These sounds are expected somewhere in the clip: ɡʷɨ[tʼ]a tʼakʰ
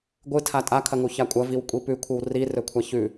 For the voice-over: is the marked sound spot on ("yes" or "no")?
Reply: no